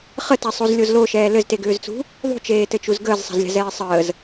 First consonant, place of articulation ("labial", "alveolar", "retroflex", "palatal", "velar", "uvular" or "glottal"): uvular